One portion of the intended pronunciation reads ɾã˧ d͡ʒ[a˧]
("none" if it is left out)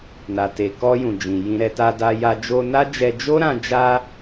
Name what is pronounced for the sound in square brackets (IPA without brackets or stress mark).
a˧